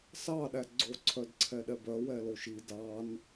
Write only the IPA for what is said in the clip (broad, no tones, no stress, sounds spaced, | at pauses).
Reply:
s ɑ ɗ æ ɡ͡ǀ o ǀʰ œ d ǀʰ ɛ ɗ ɛ b œ w ɛ l o ʃ i d ɑ n